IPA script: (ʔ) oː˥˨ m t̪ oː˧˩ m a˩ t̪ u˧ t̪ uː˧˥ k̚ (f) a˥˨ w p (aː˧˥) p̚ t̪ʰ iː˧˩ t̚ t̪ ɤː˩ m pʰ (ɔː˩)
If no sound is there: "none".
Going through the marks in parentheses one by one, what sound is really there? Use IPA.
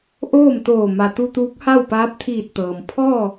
ʔ, h, aː˧˥, ɔː˥˨

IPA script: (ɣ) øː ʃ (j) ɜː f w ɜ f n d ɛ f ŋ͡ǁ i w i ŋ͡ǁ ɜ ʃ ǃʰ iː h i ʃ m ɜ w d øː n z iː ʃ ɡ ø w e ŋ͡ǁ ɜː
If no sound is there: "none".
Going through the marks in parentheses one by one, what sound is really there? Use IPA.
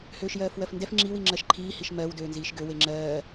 h, j

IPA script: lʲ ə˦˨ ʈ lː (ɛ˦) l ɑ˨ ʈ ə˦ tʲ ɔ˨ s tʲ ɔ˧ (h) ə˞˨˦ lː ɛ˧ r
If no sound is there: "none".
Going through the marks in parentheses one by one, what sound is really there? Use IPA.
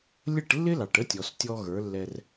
ɪ˦, ɣ

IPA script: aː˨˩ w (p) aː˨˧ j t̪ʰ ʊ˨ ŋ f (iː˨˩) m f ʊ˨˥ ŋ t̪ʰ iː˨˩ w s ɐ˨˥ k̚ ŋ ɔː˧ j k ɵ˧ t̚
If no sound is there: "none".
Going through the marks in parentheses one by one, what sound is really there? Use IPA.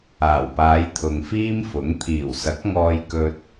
p, iː˥

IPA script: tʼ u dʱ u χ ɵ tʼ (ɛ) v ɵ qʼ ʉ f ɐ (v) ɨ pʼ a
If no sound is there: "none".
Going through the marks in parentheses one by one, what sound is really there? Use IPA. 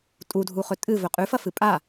ɨ, f

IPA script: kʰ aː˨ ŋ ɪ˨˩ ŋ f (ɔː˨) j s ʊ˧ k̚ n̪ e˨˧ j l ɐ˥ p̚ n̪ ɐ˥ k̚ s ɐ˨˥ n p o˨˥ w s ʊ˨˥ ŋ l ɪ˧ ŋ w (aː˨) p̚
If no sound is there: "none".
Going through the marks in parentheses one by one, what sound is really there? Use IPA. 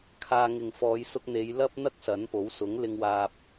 ɔː˨˧, aː˧

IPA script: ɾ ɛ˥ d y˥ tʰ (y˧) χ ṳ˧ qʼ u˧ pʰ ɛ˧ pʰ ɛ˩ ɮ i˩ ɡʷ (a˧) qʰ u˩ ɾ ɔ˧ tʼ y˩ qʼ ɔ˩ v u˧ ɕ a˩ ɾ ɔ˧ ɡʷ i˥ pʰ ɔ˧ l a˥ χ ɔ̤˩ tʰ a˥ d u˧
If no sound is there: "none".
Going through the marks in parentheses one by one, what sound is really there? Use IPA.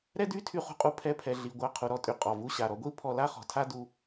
y˧, a˧

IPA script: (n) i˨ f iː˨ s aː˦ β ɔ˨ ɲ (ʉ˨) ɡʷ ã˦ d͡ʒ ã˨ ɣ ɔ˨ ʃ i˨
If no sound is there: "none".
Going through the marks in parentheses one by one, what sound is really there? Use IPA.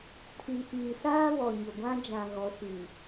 tʰ, ʊ˨

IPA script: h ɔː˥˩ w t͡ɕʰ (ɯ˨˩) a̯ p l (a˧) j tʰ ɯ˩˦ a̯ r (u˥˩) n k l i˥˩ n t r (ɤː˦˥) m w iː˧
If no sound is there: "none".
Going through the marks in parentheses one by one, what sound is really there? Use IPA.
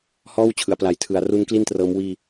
ɯ˩˦, a˨˩, u˦˥, ɤː˦˥

